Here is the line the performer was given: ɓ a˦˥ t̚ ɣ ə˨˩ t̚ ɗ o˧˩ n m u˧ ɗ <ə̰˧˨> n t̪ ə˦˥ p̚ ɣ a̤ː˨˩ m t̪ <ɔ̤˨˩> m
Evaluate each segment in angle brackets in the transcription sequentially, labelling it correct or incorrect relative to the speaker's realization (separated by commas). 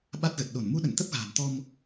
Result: correct, incorrect